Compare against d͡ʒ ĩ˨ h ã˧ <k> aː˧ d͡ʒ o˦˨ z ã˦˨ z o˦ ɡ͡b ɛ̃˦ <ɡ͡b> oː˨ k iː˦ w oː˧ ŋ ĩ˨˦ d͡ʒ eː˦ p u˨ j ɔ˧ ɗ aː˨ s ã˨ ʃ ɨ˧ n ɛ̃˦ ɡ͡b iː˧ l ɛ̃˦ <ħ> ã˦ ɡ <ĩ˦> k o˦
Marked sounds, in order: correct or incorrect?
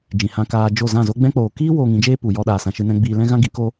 correct, incorrect, incorrect, incorrect

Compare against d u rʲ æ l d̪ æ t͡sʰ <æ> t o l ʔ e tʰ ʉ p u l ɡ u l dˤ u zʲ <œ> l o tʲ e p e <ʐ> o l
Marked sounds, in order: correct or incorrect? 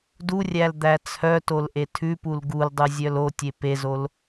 incorrect, correct, incorrect

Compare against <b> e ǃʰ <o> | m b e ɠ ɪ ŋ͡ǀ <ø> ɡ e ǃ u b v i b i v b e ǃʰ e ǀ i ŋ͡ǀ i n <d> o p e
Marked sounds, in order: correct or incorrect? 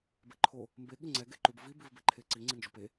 correct, correct, incorrect, incorrect

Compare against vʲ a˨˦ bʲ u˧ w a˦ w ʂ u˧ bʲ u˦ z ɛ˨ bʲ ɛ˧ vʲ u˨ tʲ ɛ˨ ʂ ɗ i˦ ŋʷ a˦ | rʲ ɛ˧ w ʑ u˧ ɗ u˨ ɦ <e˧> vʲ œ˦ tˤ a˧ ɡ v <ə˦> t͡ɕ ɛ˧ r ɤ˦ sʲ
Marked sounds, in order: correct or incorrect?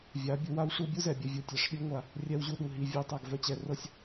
incorrect, incorrect

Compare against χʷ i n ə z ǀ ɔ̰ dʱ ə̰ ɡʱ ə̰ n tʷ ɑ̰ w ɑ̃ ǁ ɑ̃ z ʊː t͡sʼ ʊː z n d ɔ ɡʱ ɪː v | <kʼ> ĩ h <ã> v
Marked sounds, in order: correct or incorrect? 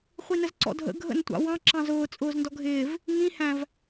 incorrect, incorrect

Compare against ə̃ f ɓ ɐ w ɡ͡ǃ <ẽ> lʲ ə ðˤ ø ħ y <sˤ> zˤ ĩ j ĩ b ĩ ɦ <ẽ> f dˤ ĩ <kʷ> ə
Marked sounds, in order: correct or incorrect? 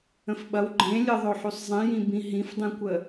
correct, correct, incorrect, correct

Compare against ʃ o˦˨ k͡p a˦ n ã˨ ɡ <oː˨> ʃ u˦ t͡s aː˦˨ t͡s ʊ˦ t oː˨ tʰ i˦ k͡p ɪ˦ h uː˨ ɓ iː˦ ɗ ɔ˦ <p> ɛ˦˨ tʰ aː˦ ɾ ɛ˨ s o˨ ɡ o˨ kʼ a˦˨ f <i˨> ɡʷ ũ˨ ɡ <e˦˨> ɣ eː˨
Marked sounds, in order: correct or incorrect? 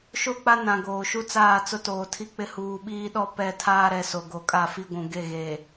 correct, correct, incorrect, correct

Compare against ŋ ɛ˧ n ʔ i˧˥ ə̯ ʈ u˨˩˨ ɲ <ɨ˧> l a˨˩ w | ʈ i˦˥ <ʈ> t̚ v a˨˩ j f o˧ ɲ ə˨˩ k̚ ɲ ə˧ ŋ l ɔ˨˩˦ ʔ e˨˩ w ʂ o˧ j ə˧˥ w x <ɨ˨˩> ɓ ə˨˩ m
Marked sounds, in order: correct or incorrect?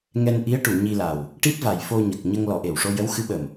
incorrect, incorrect, incorrect

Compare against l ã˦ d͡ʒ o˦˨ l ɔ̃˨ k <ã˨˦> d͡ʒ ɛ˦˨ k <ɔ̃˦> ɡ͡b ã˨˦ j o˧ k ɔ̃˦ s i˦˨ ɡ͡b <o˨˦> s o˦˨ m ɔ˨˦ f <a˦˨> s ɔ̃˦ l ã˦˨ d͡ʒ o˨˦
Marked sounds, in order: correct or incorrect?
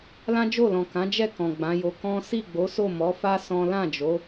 correct, incorrect, correct, incorrect

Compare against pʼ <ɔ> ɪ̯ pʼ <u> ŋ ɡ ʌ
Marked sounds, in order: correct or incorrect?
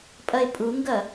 incorrect, correct

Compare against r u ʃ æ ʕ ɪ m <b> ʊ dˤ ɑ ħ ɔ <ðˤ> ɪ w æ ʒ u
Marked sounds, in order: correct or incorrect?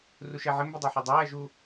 correct, incorrect

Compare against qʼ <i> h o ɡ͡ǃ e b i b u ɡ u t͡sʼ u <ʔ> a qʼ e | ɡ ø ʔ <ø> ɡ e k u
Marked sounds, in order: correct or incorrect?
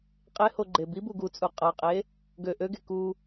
incorrect, incorrect, correct

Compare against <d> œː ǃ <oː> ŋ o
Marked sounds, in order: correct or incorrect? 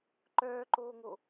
incorrect, correct

